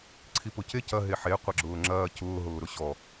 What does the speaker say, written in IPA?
ǀʰ i p ʊ c e c ɐ ɦ e ħ e qʷ ɐ ɡ͡ǁ ʊː ŋ͡ǁ ɐː c ʊː ɦ ʊː ɾ ʊ ɕ ɔ

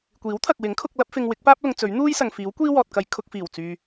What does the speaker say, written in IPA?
kʷ iː˨˥ w t̪ʰ ɐ˨ k̚ w ɪ˨˥ ŋ kʰ ʊ˧ k̚ l ɐ˥ p̚ f ɪ˧ ŋ w ɪ˨˥ k̚ p aː˥ p̚ l ʊ˨˧ ŋ t͡s ɵ˨˥ ɥ n̪ uː˥ j s ɐ˨ ŋ f iː˨˥ w kʷ iː˥ w ɔː˨ t̚ k ɐ˨˧ j kʰ ʊ˧ k̚ f iː˨˩ w t͡s yː˨

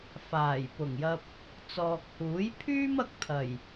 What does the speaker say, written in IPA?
f aː˨˩ j p ʊ˨˩ ŋ j ɐ˧ p̚ | t͡s ɔː˨ k̚ h uː˨˥ j pʰ yː˥ m ɐ˧ k̚ t̪ʰ ɐ˨˩ j

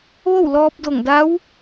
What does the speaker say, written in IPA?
ʋ o˥˨ w l ɔː˧ p̚ d o˧˩ ŋ d a˧˥ w

